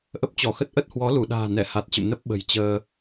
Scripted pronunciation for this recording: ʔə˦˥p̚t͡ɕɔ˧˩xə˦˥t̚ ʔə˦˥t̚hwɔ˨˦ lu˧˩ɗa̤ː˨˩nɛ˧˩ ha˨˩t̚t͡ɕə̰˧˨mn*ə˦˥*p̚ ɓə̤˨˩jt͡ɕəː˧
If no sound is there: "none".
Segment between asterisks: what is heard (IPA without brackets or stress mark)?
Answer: ə˦˥